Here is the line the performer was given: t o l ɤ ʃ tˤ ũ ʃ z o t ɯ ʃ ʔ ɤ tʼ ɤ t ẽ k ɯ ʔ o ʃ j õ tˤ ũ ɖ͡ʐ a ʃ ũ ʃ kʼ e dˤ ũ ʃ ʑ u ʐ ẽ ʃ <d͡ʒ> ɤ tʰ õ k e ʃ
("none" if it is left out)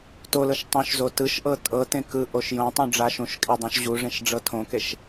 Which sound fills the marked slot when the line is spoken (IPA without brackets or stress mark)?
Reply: ɖ͡ʐ